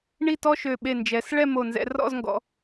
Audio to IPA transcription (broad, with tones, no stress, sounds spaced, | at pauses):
ɳ i˥˧ t ɔ˥ ʃ ø˧˩ ɓ e˧˩ n d͡ʒ ɛ˩˧ s ɭ ɛ˥˧ m o˧˩ n z ɛ̰˧ r ɔ̰˥˧ z ŋ ɡ ɔ̰˩˧